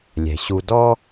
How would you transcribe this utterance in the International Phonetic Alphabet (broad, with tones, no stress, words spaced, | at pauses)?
lʲɛ̤˨ɕu˦ dɔ˦